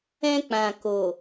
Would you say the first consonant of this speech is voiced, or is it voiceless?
voiceless